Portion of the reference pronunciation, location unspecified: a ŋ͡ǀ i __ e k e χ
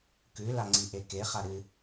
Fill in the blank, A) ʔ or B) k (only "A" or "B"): A